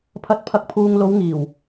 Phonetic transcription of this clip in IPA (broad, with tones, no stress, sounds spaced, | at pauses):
pʰ ɐ˨˥ t̚ pʰ ɐ˨˥ k̚ pʰ uː˨ ŋ l o˨˧ w ŋ iː˨˩ w